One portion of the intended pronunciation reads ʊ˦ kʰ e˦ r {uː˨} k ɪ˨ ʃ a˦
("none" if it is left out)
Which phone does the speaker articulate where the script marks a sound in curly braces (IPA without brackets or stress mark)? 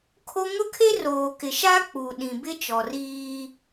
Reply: oː˨